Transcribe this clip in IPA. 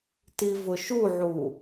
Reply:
tivʊʃuʕu

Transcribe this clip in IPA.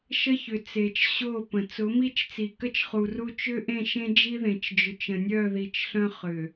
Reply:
ʃə˦çʏ˨ t͡se˨t͡ʃ ɕo˦˨pə̃˨ t͡sʊ˨˦mi˦t͡ʃ t͡si˨kə˦t͡ʃχu˨ru˦ t͡ʃʏ˦ʔẽ˦˨ʃẽ˦ d͡ʒi˦ðẽ˨t͡ʃd͡ʒʏ˨t͡ʃ ə̃˨nʲœ˦˨ði˨t͡ʃ ɬœ̃˦ χʏ˨

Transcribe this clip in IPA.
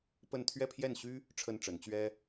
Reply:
pə˥˧n t̪ʰɥɛ˥˧pʰjɛ˥˩nɕy˥ | ʈ͡ʂʰə˥nʈ͡ʂə˧˥n t͡ɕɥɛ˥

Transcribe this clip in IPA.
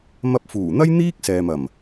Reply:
mɐ˧p̚fuː˨˩n̪ɐ˥j n̪iː˥k̚ sɛː˨mɐ˨˩m

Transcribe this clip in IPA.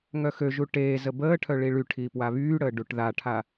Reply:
ŋœxøʒu ʈeː zəbəːʈʰœ ɭiɭyʈʰiː pwaβyːɽəː ɖuʈðaʈʰa

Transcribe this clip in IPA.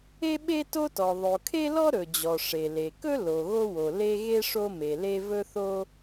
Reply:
e˥ɓe˥ to˥tɔ˩ ðˤo˩ kʰe˥lɔ˥ ɾɵ˩d͡ʑɔ˩ ʂe˩le˩kɵ˥ lo˩ɣo˥ wo˩ le˥ ɣe˥ ʂo˥me˩le˥ vɵ˥θo˥

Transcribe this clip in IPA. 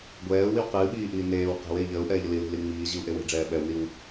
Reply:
ɡʷɛːu̯wiw qɨː ɓiːʔiː neːw qe̤wei̯ ʎəːu̯ʔɛːʎə lili̤li ŋ͡miːʑiu̯ʔe we̤ɖ͡ʐɛː ɓɛwniw

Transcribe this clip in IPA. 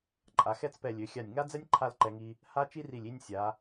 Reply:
ǃʼa˩˧xɛ˥˧t͡spɛ˧˩ lʲø˩˧xʲa˧˩nʲ ŋa˥d͡zɛ˥nʲ ǃʰa˥˧lǃɛ˧ŋi˧ | ha˥ t͡ʃi˥ri˧˩lʲ i˥˧nʲ sʲa˩˧

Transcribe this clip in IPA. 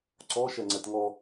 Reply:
ǀɔ ʃɛŋ͡ǀɛtŋɔ

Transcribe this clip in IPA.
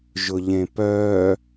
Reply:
ʒʊʎẽpœ

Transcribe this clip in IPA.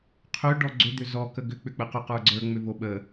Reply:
qʰø ɖɔɡ͡ǀʏ d̪ʏzɔ kəɡʏ k͡pʏk͡pəqʏ qə˞ɡ͡ǀə˞ ŋ͡mʏvoɓə

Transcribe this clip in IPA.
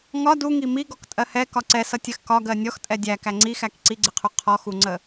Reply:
ŋɒ duŋi miɡɔktʼɜ hɛkɒ ǀɛsʌtʲɜx kɒɡɜ nʲɔxtʼɛ dʲækæ ŋ͡ǀixæk ǀiɡ͡ǀɪqʰu qʰɔxuŋ͡ǀə

